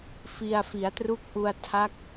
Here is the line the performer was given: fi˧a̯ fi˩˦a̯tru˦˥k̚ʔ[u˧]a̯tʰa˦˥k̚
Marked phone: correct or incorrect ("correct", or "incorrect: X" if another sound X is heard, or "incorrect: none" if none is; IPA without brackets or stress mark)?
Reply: correct